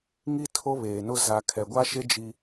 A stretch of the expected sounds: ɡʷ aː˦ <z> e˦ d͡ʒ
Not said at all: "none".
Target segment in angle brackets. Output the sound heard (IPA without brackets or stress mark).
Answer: ʃ